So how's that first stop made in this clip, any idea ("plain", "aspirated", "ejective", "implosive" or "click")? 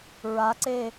click